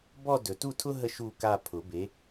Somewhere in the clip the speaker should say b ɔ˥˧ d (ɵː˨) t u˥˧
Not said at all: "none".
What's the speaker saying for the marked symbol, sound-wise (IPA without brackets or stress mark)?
ɵ˨